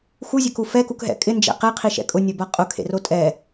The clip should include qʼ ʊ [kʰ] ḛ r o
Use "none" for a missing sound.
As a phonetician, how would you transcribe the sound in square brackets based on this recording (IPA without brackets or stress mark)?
kʰ